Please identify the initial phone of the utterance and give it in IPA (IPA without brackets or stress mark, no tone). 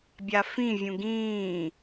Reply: bʲ